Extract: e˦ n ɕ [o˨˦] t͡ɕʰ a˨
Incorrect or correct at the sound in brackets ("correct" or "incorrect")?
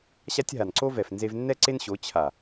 correct